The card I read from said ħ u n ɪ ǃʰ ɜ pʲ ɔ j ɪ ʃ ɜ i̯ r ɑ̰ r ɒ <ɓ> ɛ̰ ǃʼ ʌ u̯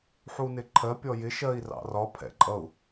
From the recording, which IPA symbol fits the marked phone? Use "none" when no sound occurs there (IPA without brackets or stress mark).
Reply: pʰ